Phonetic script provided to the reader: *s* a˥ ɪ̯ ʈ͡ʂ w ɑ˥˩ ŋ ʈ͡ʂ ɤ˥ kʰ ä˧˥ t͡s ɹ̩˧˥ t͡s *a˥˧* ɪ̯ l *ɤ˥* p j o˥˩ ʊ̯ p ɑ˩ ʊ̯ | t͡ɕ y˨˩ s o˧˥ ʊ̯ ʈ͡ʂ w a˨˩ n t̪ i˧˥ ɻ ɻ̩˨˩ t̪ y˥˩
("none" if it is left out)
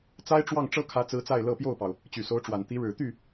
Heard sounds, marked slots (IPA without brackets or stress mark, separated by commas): t͡s, a˥˧, ɤ˥˧